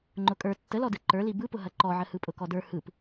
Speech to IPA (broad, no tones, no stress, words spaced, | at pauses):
ŋ͡ǃʊkʼə˞ tːəlɔdɯ ǃə˞li bɯpʊɦɐ ǃɔʕə hɯpʼʊkɔdə˞ hɯp